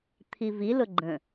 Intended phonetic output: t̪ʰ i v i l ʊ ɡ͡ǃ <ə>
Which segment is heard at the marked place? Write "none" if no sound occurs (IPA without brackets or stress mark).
ə̃